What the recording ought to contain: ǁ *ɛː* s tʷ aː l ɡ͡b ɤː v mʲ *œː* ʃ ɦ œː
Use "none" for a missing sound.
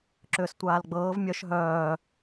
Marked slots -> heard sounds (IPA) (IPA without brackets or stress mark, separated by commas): ʏː, œ